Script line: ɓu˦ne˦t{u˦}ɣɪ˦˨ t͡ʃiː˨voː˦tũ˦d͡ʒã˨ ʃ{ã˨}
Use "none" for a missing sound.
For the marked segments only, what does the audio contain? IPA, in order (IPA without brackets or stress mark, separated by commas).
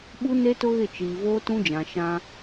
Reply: ʊ˦, ã˦